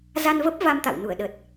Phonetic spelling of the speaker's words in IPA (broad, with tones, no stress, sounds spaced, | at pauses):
z a˧ n v ə˦˥ p̚ v a˧ m t̪ a̰˧˨ w n u˧˩ ə̯ ɗ ə˨˩ t̚